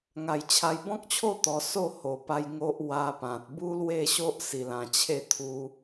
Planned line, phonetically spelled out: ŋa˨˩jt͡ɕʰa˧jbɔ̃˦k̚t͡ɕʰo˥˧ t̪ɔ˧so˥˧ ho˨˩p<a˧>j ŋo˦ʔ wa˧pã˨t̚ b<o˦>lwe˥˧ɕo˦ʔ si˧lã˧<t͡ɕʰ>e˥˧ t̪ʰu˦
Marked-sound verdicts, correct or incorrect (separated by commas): correct, incorrect, correct